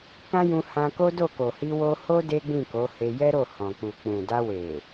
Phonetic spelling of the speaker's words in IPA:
k ã˦ j ũ˧ h ã˧ k o˦ d o˦˨ k o˨ h i˧ w o˧ h o˦ d e˦ ɡ͡b ĩ˦˨ k o˨˦ h e˧ j ɛ˦ ɾ o˦˨ h ɔ̃˨ k͡p u˨ k͡p ũ˨ d a˧ w e˨

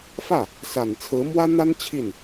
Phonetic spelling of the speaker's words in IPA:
f ä˥˩ | s a˨˩ n t͡sʰ ɹ̩˧˥ m w ä˥ n̪ a˥ n t͡ɕʰ i˥˩ n

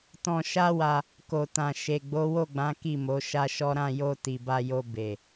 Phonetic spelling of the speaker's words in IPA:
t ɔ̃˧ ʃ a˦ w a˧ | k o˨ t ã˨ ʃ e˨ ɡ͡b o˨˦ w o˦˨ ɡ͡b ã˨˦ k i˦˨ m o˨˦ ʃ a˦ ʃ ɔ˦ ɾ ã˦˨ j o˧ t i˨ b a˧ j o˧ b e˨

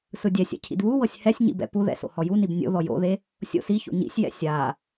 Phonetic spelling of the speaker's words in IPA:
s ɯ dʲ ɛ sʲ ɛ̰ cʰ ḭ d β u w ɤ sʲ h ɛ sʲ ɲ ḭ b ɛ̰ p u ð ɛ̰ s o̰ h ɔ j u n i b nʲ o̰ ð ɔ j o̰ ð e | sʲ o̰ s i ç o̰ ɲ ḭ sʲ j ɛ̰ sʲ a

